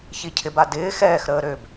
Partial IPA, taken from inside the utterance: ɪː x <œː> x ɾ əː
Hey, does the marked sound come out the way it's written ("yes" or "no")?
no